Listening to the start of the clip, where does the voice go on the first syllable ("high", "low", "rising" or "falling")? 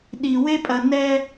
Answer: low